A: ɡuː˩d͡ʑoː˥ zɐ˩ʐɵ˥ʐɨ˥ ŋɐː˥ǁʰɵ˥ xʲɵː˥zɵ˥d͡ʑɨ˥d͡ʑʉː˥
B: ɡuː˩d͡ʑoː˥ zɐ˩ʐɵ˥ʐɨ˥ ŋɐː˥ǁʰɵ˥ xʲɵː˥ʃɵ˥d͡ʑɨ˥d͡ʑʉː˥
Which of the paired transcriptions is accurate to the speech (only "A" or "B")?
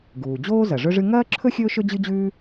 B